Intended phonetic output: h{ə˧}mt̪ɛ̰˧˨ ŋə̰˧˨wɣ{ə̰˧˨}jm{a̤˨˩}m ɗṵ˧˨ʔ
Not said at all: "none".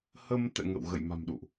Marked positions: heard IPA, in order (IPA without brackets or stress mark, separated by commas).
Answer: ə˧, ə̰˧˨, a̤˨˩